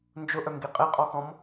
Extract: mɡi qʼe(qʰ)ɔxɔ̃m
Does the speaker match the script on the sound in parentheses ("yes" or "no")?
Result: no